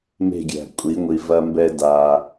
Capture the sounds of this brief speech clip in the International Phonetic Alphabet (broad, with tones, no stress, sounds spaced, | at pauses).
m e̤˦˨ ɡʲ æ̤˨ kʷʼ i˨˦ ŋʷ i˨ v ɐ˦ m b ɛ˦ d a˦